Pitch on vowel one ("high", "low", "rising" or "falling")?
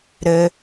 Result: high